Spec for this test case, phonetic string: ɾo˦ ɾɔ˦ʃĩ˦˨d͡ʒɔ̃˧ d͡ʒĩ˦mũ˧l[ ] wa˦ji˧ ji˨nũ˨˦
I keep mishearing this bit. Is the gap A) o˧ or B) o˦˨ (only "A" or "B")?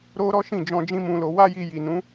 A